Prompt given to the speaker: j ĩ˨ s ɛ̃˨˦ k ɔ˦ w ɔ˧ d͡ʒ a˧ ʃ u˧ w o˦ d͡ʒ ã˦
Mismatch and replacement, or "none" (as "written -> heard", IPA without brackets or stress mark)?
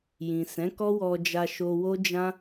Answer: u˧ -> o˧